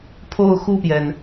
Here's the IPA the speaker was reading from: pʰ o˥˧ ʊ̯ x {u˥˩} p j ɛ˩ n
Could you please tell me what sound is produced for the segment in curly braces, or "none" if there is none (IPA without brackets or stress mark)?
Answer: u˥˩